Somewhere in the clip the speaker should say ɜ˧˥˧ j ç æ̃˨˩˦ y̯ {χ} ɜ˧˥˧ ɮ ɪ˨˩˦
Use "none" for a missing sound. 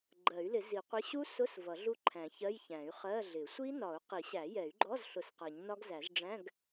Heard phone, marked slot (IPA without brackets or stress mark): χ